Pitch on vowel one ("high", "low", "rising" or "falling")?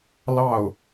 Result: falling